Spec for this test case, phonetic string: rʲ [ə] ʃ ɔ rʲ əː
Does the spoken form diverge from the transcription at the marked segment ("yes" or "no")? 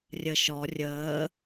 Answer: no